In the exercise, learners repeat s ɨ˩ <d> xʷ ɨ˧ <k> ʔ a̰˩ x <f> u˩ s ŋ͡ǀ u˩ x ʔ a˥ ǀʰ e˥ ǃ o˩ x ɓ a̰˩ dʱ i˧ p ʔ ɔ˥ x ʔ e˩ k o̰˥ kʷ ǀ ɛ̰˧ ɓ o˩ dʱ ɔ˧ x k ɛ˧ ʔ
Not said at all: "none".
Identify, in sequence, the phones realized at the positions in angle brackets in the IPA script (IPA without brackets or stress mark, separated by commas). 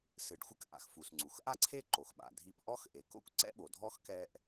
ɖ, k, f